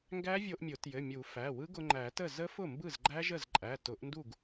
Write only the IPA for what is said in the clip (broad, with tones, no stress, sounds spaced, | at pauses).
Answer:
ŋ ɡ æ˦˥ vʲ o˧ ʔ mʲ ʊ˨˩˦ t j ɘ˩˧˩ mʲ u˨˩˦ f æ˩˧˩ w ɯ˦˥ ɡ ʊ˧ ŋ͡ǃ æ˨˩˦ t ə˥˩ z ə˦˥ f ʊ˥˩ m b ɯ˥˩ z ɡ͡ǃ æ˦˥ ʒ ə˥˩ z ǃʼ æ˩˧˩ t ʊ˨˩˦ ʔ n d u˥˩ ɡ